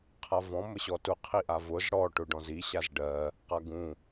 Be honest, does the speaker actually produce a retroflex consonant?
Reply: yes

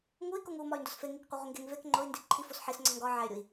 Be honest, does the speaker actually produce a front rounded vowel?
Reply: yes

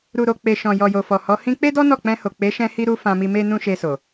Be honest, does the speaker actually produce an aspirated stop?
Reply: no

